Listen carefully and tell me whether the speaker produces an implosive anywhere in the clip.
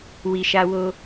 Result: no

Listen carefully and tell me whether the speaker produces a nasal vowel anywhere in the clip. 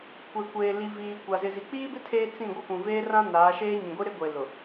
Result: yes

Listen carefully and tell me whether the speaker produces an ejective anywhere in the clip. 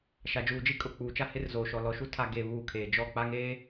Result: yes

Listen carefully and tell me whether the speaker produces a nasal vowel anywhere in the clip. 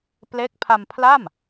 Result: no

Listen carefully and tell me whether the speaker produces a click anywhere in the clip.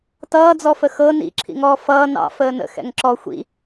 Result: yes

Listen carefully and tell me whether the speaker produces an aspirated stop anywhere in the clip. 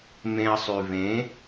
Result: no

